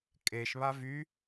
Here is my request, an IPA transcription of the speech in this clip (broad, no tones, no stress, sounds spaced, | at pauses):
kʼ e ʃ β a v y